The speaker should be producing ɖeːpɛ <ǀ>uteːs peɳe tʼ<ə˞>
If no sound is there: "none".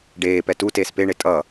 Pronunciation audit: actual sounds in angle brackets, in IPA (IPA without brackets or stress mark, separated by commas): t, ʌ